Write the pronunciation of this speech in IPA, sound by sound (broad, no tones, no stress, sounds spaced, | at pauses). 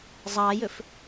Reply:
zˤ ɑ j ɵ f